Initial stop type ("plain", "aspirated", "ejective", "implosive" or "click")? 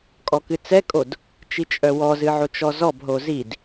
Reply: ejective